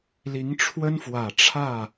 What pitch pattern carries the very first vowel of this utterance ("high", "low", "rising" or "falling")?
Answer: rising